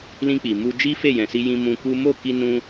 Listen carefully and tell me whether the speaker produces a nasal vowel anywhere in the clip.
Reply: yes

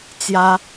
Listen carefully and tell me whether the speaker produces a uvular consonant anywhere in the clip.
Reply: no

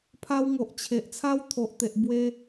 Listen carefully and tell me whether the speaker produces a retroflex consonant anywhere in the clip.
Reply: no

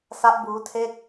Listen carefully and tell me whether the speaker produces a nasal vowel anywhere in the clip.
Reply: no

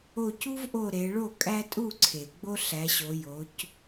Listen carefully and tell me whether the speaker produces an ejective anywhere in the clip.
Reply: yes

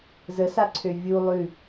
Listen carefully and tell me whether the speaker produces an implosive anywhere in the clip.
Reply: no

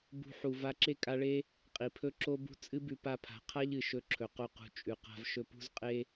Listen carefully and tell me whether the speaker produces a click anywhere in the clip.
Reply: yes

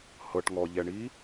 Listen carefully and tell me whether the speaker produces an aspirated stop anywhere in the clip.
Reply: no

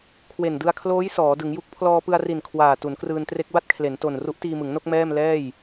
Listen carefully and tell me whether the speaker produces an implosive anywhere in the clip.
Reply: no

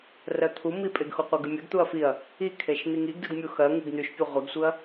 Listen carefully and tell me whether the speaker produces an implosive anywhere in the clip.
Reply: no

